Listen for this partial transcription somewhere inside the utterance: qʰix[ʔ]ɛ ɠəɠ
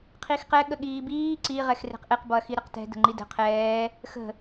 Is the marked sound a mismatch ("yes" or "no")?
yes